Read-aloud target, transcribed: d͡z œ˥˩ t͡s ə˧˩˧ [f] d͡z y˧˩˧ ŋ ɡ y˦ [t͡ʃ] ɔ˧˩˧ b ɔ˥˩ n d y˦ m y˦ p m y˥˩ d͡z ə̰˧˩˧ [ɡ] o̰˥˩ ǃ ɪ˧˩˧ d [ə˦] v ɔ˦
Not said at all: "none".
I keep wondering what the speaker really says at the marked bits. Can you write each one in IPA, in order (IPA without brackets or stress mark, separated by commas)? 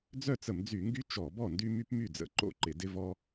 m, t͡ʃ, ǃ, ɪ˦